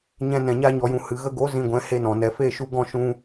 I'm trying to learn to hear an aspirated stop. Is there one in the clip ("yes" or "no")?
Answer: no